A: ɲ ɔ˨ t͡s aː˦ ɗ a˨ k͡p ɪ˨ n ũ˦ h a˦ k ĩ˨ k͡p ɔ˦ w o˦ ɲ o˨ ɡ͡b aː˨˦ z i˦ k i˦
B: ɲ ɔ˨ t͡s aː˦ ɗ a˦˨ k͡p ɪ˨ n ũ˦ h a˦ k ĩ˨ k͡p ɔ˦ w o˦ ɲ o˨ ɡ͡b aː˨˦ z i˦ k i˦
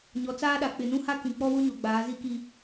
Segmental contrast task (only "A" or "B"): A